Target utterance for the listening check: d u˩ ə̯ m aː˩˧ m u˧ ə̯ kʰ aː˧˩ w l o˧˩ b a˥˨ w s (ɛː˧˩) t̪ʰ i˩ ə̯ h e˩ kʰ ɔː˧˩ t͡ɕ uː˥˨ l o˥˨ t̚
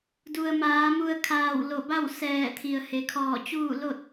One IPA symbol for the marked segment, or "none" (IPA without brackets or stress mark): ɛː˧˩